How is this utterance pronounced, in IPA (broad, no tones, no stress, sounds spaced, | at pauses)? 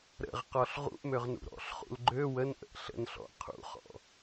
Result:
ɾ ə̰ ʁ q ɔ ɬ ʁ ṵ ʔ m ø ʁ n ṵ ɾ ɔ̰ ɬ χ ṵ l ɡ͡ǃ ø w ə n ʔ ə̰ ʔ ɬ ə̰ n ɬ ɔ̰ qʰ ṵ χ ɔ̰